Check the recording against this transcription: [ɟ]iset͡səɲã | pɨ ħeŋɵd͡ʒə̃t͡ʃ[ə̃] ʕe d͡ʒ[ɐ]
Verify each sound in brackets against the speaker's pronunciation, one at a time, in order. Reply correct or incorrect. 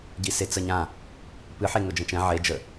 correct, incorrect: ɛ̃, incorrect: ə

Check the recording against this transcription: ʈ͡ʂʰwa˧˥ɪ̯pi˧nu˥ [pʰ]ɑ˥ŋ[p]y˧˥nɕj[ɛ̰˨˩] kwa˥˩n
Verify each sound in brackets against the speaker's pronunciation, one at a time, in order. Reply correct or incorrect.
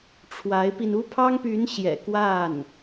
correct, correct, correct

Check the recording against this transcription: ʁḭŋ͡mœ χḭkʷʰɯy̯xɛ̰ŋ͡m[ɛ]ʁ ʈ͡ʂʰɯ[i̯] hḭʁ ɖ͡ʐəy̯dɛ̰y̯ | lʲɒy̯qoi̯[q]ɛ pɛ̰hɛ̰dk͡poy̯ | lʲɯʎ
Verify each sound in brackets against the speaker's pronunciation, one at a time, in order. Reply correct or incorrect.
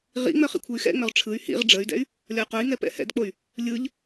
incorrect: œ, incorrect: y̯, incorrect: ŋ

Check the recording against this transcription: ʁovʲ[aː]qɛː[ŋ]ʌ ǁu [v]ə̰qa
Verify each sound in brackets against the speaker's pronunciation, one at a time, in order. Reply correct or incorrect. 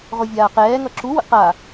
correct, correct, incorrect: w

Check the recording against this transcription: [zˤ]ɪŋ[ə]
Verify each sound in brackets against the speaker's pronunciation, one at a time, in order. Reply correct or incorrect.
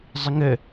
correct, correct

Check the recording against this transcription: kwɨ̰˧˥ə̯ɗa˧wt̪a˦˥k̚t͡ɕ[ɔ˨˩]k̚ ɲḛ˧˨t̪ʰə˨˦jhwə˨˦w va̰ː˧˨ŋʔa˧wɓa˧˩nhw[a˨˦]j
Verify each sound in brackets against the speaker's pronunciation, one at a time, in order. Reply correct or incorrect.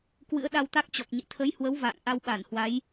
correct, correct

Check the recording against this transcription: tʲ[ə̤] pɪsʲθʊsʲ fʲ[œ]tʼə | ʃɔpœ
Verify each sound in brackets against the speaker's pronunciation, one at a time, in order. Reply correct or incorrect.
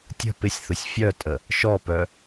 correct, correct

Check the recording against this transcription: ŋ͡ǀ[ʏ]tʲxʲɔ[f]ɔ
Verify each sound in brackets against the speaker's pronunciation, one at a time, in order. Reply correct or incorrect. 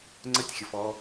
incorrect: ə, correct

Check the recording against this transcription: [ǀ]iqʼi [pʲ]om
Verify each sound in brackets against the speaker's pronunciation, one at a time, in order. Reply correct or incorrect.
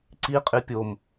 correct, correct

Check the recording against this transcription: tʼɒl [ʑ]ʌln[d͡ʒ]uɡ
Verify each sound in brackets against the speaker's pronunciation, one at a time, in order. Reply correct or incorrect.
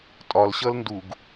incorrect: ɕ, incorrect: d

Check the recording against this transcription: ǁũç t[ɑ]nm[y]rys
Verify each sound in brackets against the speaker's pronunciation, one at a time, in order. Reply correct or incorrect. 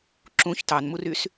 correct, incorrect: u

